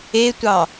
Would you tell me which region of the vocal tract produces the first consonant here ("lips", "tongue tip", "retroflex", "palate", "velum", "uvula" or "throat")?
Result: tongue tip